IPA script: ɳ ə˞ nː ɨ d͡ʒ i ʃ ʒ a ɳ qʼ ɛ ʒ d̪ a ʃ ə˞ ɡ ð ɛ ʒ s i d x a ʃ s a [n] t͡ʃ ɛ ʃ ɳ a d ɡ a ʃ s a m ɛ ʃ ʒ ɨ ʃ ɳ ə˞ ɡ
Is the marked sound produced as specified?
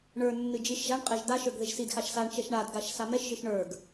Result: no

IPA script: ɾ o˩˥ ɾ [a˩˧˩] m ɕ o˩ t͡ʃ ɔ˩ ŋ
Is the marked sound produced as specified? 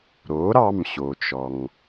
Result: no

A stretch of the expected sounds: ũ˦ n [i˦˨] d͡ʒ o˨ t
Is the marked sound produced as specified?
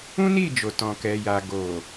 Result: yes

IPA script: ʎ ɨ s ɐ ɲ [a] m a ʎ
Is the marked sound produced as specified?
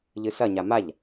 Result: yes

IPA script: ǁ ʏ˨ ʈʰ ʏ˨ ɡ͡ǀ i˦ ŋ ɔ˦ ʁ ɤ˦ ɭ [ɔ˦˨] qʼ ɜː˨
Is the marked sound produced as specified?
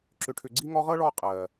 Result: yes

